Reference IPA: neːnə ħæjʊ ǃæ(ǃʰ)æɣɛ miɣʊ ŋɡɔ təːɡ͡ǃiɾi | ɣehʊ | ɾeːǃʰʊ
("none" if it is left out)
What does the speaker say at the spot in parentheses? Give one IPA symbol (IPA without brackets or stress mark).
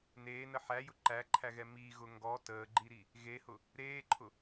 ǃʰ